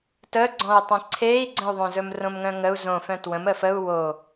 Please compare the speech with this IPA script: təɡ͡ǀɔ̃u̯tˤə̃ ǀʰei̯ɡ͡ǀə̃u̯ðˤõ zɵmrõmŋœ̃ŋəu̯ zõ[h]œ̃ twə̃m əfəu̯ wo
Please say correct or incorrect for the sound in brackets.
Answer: incorrect